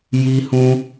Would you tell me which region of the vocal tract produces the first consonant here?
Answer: palate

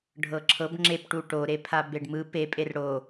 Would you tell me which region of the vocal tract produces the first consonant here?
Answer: retroflex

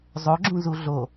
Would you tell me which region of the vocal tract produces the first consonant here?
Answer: tongue tip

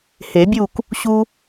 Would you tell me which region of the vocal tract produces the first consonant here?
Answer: throat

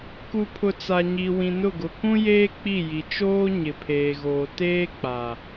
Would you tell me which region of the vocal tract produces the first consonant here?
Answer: velum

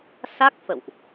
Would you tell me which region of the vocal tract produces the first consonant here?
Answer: tongue tip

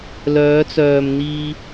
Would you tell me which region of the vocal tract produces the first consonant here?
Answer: tongue tip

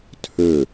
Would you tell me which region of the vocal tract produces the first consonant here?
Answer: tongue tip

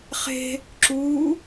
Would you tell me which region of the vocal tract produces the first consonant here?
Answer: uvula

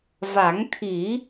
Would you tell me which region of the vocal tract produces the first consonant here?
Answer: lips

